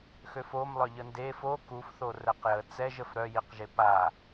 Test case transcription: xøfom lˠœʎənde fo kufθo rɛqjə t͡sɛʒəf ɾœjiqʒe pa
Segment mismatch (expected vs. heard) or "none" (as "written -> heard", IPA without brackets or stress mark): none